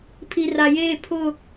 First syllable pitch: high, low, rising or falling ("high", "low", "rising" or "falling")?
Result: low